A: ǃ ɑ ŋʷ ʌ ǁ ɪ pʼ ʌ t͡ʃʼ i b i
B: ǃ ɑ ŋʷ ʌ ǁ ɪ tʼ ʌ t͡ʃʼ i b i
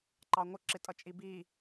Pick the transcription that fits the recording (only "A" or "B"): B